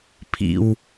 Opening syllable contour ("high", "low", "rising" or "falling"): low